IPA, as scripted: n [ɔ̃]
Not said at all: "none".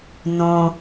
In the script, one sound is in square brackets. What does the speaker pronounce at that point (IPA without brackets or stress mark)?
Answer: õ